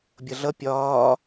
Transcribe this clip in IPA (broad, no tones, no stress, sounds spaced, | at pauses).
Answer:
bʲ ʌ ɮ ʌ pʲ ɒː